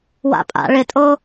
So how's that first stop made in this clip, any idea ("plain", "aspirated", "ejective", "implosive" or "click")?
ejective